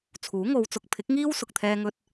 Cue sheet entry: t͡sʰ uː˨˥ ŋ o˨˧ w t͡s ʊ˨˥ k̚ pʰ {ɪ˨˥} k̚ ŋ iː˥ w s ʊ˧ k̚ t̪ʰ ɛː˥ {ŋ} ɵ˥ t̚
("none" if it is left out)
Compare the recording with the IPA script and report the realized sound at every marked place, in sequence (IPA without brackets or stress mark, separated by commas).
ɪ˨˥, ŋ